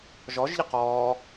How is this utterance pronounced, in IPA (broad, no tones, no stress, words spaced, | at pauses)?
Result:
ʒɔʒʎə qɔː